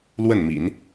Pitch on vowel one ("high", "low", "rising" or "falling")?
falling